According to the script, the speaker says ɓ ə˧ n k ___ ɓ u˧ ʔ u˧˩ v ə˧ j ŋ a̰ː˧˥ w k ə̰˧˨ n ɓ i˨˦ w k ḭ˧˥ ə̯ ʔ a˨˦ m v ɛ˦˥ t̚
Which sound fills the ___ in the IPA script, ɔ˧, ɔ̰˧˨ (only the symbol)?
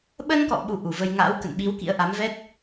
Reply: ɔ̰˧˨